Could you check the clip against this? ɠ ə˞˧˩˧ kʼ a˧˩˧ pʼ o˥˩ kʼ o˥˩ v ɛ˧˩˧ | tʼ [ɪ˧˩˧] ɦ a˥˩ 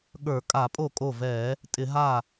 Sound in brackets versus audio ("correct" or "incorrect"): correct